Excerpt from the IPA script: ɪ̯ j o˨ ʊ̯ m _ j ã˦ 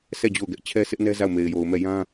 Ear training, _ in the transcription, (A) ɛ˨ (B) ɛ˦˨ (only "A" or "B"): B